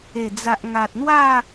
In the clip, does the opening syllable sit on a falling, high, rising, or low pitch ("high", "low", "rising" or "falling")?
low